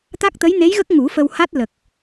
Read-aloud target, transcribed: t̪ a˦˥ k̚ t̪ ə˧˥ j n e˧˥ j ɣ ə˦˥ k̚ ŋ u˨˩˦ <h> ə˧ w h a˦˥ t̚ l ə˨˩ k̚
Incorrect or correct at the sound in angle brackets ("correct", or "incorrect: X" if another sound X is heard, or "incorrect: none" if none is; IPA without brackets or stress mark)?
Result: incorrect: f